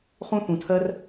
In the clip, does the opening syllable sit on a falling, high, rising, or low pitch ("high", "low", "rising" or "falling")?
high